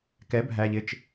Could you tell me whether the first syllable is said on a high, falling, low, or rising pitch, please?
rising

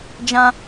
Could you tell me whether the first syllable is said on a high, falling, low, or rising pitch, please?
high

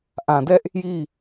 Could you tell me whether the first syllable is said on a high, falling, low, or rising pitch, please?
low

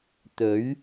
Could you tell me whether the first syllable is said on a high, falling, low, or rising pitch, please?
rising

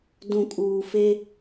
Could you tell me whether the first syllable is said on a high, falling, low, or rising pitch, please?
low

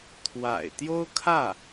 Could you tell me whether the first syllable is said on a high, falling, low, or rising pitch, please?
low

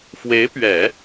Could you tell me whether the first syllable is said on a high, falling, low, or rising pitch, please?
rising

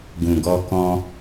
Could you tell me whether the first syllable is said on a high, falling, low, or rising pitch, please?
low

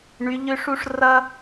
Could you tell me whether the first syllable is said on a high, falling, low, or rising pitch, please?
rising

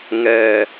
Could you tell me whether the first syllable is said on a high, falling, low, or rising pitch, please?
low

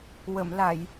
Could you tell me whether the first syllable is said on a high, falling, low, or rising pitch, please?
low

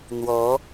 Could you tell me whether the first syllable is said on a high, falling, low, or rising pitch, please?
rising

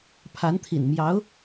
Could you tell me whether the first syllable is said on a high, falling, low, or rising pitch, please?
rising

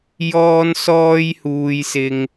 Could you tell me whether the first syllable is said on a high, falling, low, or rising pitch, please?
high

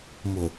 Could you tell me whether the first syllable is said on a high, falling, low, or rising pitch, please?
low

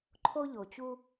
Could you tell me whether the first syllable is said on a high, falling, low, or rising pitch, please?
high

